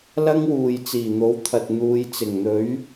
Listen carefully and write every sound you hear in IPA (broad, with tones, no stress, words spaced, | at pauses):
lɐ˥ŋwuː˨j t͡siː˨˩n̪o˨˥wt̪ʰɐ˨t̚ n̪uː˨˧j t͡sɪ˨˩ŋn̪ɵ˨˥ɥ